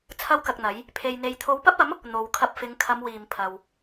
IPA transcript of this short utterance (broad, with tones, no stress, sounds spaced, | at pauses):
t͡sʰ ɐ˥ w k ɐ˧ k̚ n̪ ɐ˨˥ j | pʰ e˨ j n̪ e˨ j t̪ʰ o˨˧ w p ɐ˥ p̚ ɐ˨˥ m | n̪ o˨ w kʰ ɐ˧ p̚ f ɪ˨˧ ŋ kʰ ɐ˨˧ m w iː˨ m pʰ ɐ˨ w